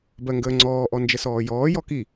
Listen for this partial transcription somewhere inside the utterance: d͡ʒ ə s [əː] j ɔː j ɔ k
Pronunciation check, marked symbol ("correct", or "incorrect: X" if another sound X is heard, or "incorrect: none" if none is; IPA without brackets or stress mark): incorrect: ɔː